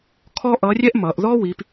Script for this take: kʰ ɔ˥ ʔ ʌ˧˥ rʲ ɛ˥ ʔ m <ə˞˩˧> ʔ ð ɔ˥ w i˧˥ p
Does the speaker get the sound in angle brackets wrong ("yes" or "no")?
yes